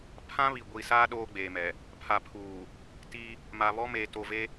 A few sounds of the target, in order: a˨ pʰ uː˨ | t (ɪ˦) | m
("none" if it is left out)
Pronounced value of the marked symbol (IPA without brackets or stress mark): i˦